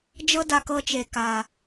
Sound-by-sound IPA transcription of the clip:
d͡ʒ ɤ˦ d a˧ k ɤ˧ t͡ʃ e˨ k a˨

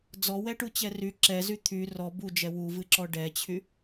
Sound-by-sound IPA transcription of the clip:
d͡z ɔ w ɛ ʈ u t͡ɕ ɛ r y ǁ ɛ z y t̪ʰ y r ɔ b u d͡ʒ ɛ w u v ɨ ǁ ɔ ɖ ɛ t͡ɕʰ y

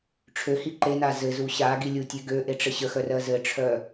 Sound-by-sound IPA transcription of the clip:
ʈ͡ʂʰ ø h i ǃ e n a z ɘ z u ɕ a ɡ i lʲ u tʲ ø ɡ ø ʔ e ʈ͡ʂ ɘ ɕ ə x œ r ɜ z ɘ ʈ͡ʂʰ œ

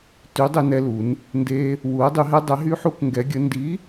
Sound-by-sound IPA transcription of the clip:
t y˨˥ dˤ e˦ n ɛ˦ l u˨˥ n | n d e˦ | w u˨˥ ə̯ dˤ y˨˥ ɦ ɛ˦ dˤ ɛ˨˥ ɦ y˦ ħ u˦ k ŋ ɡ ɛ˨˥ ɡʲ ə˨˥ n d i˨˥

